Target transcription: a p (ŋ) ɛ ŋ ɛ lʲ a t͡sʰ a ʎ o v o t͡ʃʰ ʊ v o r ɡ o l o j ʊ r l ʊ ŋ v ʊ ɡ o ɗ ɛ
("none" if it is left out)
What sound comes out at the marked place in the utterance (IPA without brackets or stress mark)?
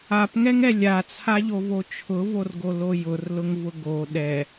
ŋ